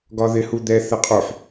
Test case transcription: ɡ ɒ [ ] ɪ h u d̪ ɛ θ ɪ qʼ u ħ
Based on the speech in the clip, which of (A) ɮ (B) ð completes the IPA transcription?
B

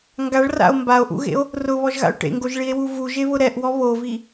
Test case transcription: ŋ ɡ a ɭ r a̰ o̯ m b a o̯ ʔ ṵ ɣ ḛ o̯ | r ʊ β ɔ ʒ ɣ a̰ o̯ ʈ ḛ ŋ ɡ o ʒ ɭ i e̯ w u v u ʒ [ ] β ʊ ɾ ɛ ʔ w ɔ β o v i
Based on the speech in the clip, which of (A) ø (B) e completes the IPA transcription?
B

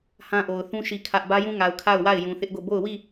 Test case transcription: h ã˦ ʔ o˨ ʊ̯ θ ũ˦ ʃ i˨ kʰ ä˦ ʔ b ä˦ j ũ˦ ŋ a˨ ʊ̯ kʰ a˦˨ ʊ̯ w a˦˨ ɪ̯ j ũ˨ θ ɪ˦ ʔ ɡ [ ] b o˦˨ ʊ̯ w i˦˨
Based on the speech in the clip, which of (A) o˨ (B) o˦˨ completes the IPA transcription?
B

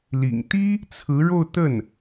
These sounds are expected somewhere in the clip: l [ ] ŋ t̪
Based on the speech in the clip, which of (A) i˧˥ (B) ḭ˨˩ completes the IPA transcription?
B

